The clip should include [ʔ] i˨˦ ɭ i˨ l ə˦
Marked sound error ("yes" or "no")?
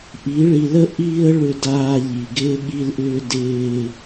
no